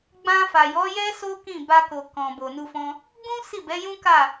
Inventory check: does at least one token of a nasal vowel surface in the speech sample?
yes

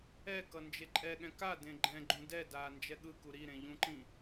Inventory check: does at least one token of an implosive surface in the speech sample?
yes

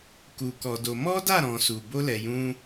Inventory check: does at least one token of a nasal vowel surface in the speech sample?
yes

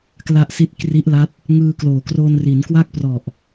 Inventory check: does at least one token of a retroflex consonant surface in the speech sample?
no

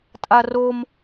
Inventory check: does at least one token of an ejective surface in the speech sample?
yes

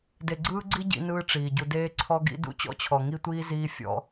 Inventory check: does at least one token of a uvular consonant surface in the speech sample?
no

